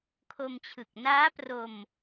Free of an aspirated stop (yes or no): no